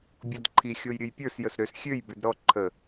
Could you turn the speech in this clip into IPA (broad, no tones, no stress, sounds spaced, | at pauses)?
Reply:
bʲ ɔ d ǃʰ i xʲ o j ɾʲ ɨ j pʲ ə˞ s j ə s ɾ ø s xʲ ø j b ø d ɾ ɔ ǃʰ ə